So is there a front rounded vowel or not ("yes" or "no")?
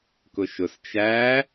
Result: no